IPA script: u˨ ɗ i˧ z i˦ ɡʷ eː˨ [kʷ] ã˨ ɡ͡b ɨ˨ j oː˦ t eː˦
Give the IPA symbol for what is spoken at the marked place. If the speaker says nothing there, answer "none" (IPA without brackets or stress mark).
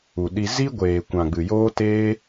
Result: kʷ